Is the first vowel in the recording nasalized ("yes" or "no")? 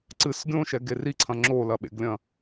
no